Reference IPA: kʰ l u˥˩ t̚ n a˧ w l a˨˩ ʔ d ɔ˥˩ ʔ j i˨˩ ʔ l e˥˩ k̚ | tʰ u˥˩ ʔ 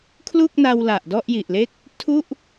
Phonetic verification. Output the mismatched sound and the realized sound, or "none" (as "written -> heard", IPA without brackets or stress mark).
t̚ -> k̚